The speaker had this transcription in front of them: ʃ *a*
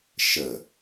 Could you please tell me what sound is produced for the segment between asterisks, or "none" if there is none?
ə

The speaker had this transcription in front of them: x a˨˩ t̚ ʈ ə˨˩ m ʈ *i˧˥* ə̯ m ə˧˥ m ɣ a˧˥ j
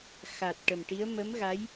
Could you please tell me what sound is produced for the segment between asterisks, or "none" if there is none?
i˧˥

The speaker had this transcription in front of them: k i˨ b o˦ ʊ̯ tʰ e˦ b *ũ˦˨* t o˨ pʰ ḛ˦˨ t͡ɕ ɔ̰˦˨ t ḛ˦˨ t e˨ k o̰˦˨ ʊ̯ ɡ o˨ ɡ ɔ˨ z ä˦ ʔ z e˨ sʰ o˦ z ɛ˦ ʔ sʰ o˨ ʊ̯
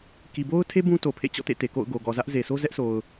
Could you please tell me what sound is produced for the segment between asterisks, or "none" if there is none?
ũ˦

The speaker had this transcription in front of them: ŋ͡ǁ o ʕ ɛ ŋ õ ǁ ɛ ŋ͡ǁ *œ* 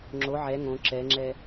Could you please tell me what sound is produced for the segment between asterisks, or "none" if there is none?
ɛ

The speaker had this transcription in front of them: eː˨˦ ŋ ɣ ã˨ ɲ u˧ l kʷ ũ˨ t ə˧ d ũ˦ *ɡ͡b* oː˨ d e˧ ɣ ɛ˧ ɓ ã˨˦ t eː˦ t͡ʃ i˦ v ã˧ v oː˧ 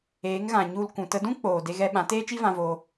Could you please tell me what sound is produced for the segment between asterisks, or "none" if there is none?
k͡p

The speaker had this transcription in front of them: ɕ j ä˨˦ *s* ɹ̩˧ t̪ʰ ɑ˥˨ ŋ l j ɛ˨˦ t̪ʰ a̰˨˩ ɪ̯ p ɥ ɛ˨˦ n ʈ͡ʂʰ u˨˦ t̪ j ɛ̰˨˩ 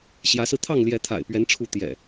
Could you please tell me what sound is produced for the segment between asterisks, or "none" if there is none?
s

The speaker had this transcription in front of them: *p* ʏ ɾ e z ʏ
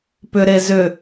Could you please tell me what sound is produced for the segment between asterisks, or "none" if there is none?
p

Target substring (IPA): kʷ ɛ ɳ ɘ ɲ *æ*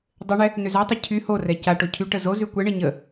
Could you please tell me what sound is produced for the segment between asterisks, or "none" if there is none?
ə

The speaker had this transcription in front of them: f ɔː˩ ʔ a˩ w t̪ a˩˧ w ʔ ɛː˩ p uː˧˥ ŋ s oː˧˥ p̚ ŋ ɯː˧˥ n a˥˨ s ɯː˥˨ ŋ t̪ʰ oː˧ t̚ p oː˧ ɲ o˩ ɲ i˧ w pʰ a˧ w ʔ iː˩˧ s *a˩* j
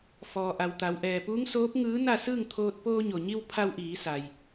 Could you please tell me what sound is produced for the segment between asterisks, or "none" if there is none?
a˩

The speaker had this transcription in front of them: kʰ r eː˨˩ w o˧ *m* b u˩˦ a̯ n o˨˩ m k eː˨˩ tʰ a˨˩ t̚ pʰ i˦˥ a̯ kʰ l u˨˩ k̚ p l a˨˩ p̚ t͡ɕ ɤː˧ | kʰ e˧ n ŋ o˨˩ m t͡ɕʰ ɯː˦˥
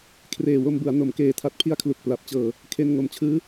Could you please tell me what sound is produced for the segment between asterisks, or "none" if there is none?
m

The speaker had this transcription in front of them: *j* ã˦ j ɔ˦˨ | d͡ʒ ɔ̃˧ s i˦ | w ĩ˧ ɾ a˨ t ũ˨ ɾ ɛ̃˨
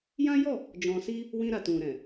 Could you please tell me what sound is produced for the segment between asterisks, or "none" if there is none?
j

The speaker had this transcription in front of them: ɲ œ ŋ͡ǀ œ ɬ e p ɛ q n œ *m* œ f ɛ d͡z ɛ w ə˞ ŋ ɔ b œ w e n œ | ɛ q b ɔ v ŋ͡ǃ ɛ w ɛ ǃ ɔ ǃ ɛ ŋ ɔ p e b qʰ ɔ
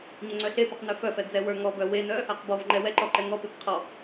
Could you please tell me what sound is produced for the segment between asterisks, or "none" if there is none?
f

